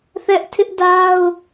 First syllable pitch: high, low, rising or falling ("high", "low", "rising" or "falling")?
high